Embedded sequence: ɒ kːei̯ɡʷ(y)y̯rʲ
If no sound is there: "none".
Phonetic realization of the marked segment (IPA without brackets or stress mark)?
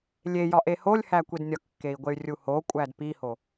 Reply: e